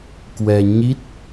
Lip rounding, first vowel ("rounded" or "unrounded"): unrounded